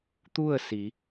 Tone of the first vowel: falling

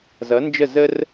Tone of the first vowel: rising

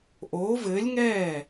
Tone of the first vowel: rising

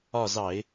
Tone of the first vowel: falling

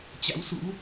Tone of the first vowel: rising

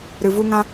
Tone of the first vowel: low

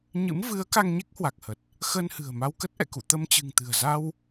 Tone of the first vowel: rising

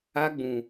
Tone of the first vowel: high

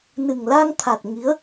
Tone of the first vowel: low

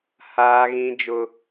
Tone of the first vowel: high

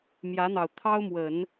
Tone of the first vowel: rising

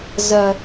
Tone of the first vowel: low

